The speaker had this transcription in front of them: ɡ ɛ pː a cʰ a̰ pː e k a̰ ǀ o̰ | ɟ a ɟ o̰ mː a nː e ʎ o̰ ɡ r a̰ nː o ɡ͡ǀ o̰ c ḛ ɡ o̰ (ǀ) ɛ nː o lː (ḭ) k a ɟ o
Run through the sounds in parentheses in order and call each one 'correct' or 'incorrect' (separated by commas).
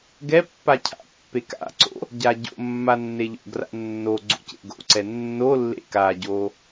correct, incorrect